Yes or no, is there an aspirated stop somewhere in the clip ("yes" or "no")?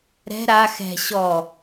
no